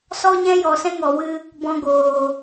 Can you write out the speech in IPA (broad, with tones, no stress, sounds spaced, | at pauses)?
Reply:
s ɔ˦ ɲ ɛ̃˦ j ɔ˨ s ɛ̃˦ ŋ ɔ˨ w ɨ˦ | b ɔ̃˧ ɡ oː˨